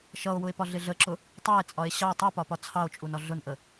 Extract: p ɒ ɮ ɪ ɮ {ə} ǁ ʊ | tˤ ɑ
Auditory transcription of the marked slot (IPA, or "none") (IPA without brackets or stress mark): ə